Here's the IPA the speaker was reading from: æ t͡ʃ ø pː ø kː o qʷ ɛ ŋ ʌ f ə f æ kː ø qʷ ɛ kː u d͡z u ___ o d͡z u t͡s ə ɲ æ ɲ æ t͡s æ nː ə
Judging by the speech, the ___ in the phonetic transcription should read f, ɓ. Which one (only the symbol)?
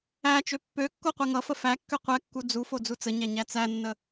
f